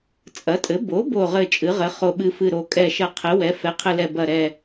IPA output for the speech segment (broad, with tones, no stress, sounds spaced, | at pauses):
t͡sʼ ɐ˩˥ tʼ ɘ˩˥ b o˩˥ b o˨˩ ʁ ɘ˨˩ t͡ʃʼ ɨ˩˥ ʁ ɘ˩˥ χ o˨˩ ɓ ɨ˨˩ f ɨ˨˩ ɾ o˨˩ kʼ ɛ˨˩ ʃ ɐ˨˩ qʰ ɘ˩˥ w ɛ˩˥ f ɛ˩˥ qʰ ɘ˨˩ l ɛ˨˩ b ɐ˨˩ ɾ ɛ˨˩